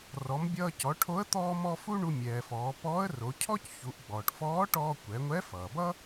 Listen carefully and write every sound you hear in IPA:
r ɔ˩˧ m bʲ ʌː˧ c ɔ˩˧ ʈʰ o˧˥ ə̯ t̪ ɔː˧ m ɔ˧ f u˥ ɳ u˧ mʲ ɛː˩ f ɔː˩˧ p ɔː˧˥ ə̯ r o˩˧ cʰ ɔ˥ c ç u˩˧ ʔ ɡ͡b ɔː˩ ʈ f ɔː˧˥ ʈ ɔː˧ kʷ ɛ˩˧ ŋʷ ɛ˧˥ f ʌː˩ b ʌ˥

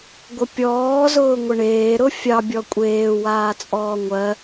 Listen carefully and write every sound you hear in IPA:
ɡʷ ə pʲ ɔː z ʊː ŋʷ ə ɳ eː ɾ ʊ fʲ ɑ bʲ ɔ kʷʼ eː w aː t͡sʼ ɔː ŋʷ ɜ

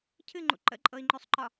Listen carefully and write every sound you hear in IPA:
cʰ ɨ ŋ͡ǃ ṵ ǃ ə̰ ǃʼ ɤ i̯ ŋ͡ǃ ø sˤ ǃ ɒ

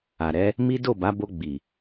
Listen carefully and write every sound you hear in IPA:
a˨ ɾ ɛ˨˦ | m i˦ d o˦˨ b a˨˦ b o˧ ɡ͡b i˨

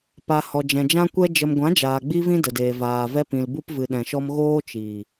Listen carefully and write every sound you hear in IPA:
p a˨ h ɔ˨ d͡ʒ ɛ̃˨ d͡ʒ ã˦ kʷ ɛ˦ d͡ʒ ə˨ m ɡʷ ã˨˦ d͡ʒ aː˨ ɡ͡b i˦ v ĩ˦ d ə˨ d eː˨ v aː˨ v ɛ˧ p ĩ˨ l b u˧ p v ɨ˨ ɗ ɛ̃˨ ʃ ɔ˧ m ɣ oː˦ t͡ʃ iː˨

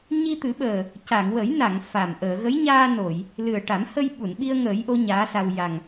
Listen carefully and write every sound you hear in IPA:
ɲ i˧ t̪ ɨ˨˩˦ ɓ əː˨˩ | c a˨˩˨ ŋ w ə˨˩˦ j n a˨˩˨ ŋ f a˨˩ m ʔ əː˨˩˨ ɣ ə˧˥ j ɲ aː˧ n o˨˩˨ j | l ɨ˨˩ ə̯ ʈ a˨˩˦ m h ə˧ j ɓ u˨˩˨ n ɓ i˧ ə̯ ŋ əː˨˩˦ j ʔ o˧˥ ɲ aː˧˥ s a˧ w j a˨˩ ŋ

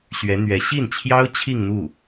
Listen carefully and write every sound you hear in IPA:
ɕ ɥ ɛ˧˥ n̪ ɥ ɛ˧˥ ɕ i˥˩ n t͡ɕʰ j ɑ˥ ʊ̯ t͡ɕʰ i˥˧ ŋ n̪ u˥˩

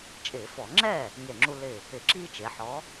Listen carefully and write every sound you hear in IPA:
t͡ʃʼ ɪː˧˩˧ f ɔ˧˩˧ ŋ͡ǁ ɛ˥˩ | ŋ e˧˩ ŋ͡ǁ u˦ l ɪ˧˩ | ɪ˧˩˧ ǁ iː˦ t͡ʃ e˩˧ ħ ɔ˨˥

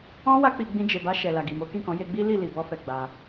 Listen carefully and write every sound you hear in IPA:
ɔ̃˦ w a˦ k͡p i˧ ɡ͡b ĩ˧ d͡ʒ e˨ b a˧ ʃ ɛ˨ l a˨ ɡ i˨ m o˨˦ k ĩ˦˨ k ɔ̃˨˦ j e˧ ɡ͡b i˦ l i˦˨ l i˨ b ɔ˧ f ɛ˨ ɡ͡b a˧

